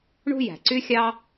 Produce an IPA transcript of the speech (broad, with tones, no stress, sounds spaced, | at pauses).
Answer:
ɳ ṳ˥ j æ̤˩ ǀ y˥ xʲ ɑ˥